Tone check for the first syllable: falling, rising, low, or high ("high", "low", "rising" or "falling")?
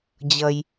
low